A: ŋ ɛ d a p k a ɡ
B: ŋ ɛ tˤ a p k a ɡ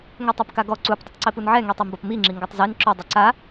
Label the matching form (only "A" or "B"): B